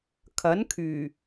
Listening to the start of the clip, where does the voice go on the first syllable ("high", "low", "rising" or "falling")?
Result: rising